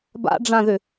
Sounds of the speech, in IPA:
b a̰ ɖ͡ʐ ã ð ʏ

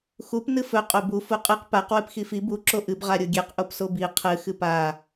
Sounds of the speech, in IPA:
x u p n ɨ f ɵ qʼ o b u f u qʼ ɨ q p a q w ɨ p x i f i b u ǁ o ʔ ɨ b ʁ a ɾʲ o ɡʲ e q ʔ o p s o b i qʰ ɨ x ɨ p a

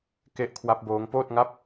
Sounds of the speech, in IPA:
k e˦˥ ʔ kʰ w a˦˥ p̚ b oː˦˥ ŋ p oː˥˩ t̚ ŋ a˥˩ p̚

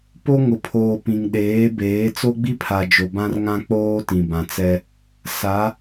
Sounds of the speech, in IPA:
p o˦ ŋ ʊ˨ pʰ oː˨ p ĩ˨ ŋ ɗ eː˨˦ b eː˨˦ t͡s o˦ ɡ͡b i˦ pʰ a˨ d͡ʒ o˨ b ã˦ r ŋ ã˦ k͡p oː˦ t ĩ˨ b ã˨ t͡s ɛ˦ | s a˨˦

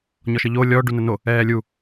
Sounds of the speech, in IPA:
ɲ ɔ ʃ ə ʎ o lʲ ɔ ɖ u n ə n o | ɛː lʲ u

